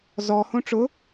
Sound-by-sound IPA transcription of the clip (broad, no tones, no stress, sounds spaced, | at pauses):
z ɔ h õ ʈ͡ʂ ʊ